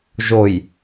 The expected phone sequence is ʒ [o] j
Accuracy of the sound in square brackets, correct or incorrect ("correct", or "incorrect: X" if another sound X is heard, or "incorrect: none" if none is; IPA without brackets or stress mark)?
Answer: correct